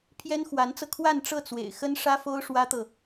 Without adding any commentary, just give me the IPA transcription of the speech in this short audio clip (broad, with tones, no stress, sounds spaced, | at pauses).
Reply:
pʰ j ɛ˥ n x w a˧˥ n t͡s ɤ˧ kʰ w a˥˧ n ʈ͡ʂ ɤ˥˩ t͡s w ḛ˨˩ ɪ̯ x ə˥ n ʂ ä˥ f o˥ ʊ̯ ʂ w ä˥ t̪ ɤ˨